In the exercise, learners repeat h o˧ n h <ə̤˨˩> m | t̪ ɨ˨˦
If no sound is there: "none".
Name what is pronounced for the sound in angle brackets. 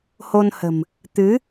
ə̤˨˩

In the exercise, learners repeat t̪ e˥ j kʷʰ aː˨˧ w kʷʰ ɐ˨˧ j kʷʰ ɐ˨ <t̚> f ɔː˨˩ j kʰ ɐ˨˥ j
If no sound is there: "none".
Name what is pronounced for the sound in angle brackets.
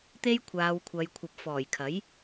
p̚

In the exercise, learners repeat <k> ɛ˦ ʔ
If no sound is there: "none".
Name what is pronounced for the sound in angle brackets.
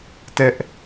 t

